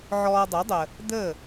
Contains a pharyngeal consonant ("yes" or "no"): yes